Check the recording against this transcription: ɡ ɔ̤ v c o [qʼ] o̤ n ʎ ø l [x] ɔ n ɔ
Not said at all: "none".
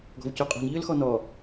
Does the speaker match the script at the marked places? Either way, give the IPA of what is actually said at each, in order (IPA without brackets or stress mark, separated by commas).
qʼ, x